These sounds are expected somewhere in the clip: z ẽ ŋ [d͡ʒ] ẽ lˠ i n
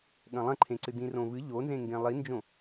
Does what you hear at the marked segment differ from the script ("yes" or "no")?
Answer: yes